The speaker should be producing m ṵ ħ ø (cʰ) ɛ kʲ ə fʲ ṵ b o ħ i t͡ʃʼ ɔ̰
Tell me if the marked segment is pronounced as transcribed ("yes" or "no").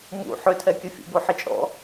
no